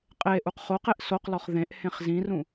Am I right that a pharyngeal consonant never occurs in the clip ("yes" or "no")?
yes